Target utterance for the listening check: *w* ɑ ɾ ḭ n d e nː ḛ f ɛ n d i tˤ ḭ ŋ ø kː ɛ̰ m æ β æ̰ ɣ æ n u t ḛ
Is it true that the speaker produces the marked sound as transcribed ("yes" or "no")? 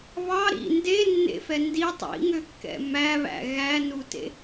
no